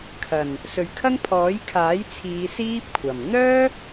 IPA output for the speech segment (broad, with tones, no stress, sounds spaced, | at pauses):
kʰ ɐ˨˩ n | s ɵ˨˧ ɥ kʰ ɐ˥ ŋ pʰ ɔː˨˥ j kʰ aː˨˥ j t͡sʰ iː˨˧ s iː˥ p̚ kʷʰ ɐ˨˩ m n̪ œː˥